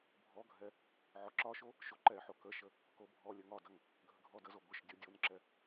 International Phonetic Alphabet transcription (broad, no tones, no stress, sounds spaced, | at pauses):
bʱ ɔ ɡʱ ɛ | ʕ ɔ ǁ ɒ ʃ o | ʃ o ǃ ɛ ħ o k ə ʃ ə | k o bʱ ɔ lʲ ə ŋ ɒ d ɐ ŋ | ɡʱ ə ɡʱ ɔ d ə z o ɡʷ ə ʃ dʲ o dʲ o n ǁ ɛ